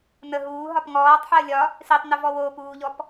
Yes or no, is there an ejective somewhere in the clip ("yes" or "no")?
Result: no